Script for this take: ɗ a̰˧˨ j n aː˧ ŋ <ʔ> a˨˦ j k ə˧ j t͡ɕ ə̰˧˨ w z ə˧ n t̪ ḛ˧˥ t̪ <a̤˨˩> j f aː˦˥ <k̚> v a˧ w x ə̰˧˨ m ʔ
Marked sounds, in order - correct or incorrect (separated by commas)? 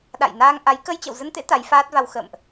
correct, incorrect, incorrect